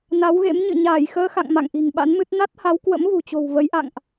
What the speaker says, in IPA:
n a˨˦ w ɣ ḛ˧˥ m ɲ ɨ̰˧˨ ɲ aː˧˩ j x əː˧ x a̰˧˨ ŋ m a̰˧˨ ŋ ʔ i̤˨˩ ŋ ɓ a̰˧˥ n m ɨ˦˥ t̚ n a˦˥ t̚ h a˨˦ w k w ə̰˧˥ m v ṳ˨˩ t͡ɕ o̤˨˩ w v ə˨˦ j ʔ a̰˧˨ ŋ ʔ

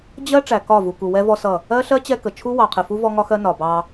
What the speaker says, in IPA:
d͡ʑ ɜ˦ ʈ͡ʂ æ˨ k ɒ˦˨ v u˨ k u˨ w ɛ˦ v ɔ˦ s ʌ˦˨ | ɜ˦ ɬ ɜ˦ t͡ɕ ɛ˦ k ə˨ t͡ʃʰ u˦ w ɑ˨ qʰ ɪ˨ f u˦ v ɔ˦ ŋ ɒ˦ x ɜ˦ n ɒ˨ b ɑ˦

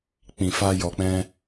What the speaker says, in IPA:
k͡p ĩ˨ f a˧ j ɔ˨ k͡p ɛ̃˧

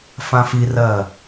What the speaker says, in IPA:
f ã f i r ɜː

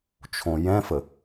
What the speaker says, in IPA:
t͡ʃʰ õ j ɛ̃ f ə

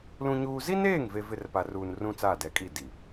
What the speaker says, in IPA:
l ũ˦ ɲ uː˦ z i˦ n eː˦˨ ŋ v e˨ v ɪ˨ r p a˨ r uː˨ n r ũ˦ t͡s aː˦˨ d ɛ˨˦ kʼ i˦˨ d i˨

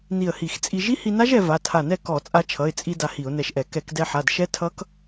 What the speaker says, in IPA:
n i˧˩ ə̯ h i˧˩˧ x t͡sʼ i˧ ʒ i˦˥ h i˧ n a˦˥ ʒ ɛ˧ v a˩˧˩ tʰ a˧˩ n ɛ˥˩ k ɔ˧˩˧ t͡sʼ a˧ t͡ʃʰ ʌ˩˧˩ ɪ̯ t͡sʼ i˧ d a˧ h i˧˩˧ ʊ̯ n ɛ˧˩ ʃ ʔ ɛ˧˩˧ k ɛ˧˩˧ k d ɛ˧ ħ a˩˧˩ d ʃ ɛ˦˥ tʰ ʌ˦˥ k

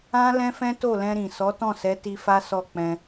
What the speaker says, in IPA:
ã˦ l ɛ̃˦ f ɛ̃˦ t o˦˨ l ɛ̃˧ ɾ ĩ˨ s ɔ˨˦ t ɔ̃˦˨ s ɛ˨˦ t i˧ f a˦ s ɔ˦˨ k͡p ɛ̃˧

